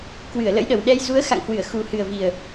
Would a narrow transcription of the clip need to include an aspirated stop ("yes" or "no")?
no